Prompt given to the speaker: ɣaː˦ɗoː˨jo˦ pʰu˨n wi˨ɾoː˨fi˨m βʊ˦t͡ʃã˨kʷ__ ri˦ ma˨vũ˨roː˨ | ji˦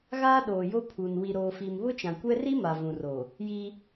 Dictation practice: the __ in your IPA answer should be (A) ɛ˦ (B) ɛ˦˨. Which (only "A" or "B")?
A